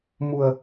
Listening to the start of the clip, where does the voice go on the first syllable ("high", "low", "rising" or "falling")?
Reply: low